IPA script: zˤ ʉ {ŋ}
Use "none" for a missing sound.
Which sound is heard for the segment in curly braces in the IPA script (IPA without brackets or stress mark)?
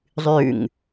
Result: ŋ